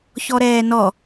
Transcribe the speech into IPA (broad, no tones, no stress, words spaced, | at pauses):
çɔɾɛːnɔ